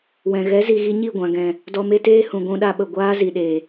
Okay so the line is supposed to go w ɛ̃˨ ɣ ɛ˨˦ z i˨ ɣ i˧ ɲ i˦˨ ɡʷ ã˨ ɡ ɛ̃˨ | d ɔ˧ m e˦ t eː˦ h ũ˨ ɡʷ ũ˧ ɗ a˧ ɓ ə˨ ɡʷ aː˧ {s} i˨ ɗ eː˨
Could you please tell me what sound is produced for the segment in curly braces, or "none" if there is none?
z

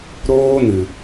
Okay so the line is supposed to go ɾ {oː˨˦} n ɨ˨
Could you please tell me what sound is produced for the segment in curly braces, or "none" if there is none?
oː˦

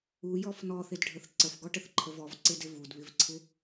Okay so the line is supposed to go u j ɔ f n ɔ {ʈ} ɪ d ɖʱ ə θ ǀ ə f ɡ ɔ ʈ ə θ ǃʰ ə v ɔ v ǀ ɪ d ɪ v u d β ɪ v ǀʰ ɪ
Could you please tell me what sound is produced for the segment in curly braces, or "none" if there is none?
θ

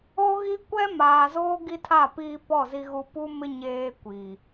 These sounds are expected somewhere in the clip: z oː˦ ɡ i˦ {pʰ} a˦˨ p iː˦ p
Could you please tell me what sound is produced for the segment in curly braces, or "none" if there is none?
tʰ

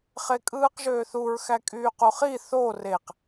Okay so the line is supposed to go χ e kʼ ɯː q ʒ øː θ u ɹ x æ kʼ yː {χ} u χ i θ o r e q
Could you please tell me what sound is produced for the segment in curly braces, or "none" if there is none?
q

